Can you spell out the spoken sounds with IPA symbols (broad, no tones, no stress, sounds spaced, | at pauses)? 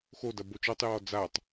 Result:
x o d ɐ b o t͡ʃ ɔ tˤ j ɔː d͡z a tˤ